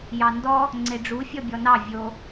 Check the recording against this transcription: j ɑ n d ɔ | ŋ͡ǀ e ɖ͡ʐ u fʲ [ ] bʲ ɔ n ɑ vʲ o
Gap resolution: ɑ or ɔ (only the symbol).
ɔ